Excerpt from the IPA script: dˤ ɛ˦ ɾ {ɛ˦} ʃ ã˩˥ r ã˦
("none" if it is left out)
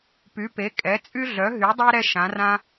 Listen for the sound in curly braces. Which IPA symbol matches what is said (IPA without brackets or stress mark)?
ɛ˦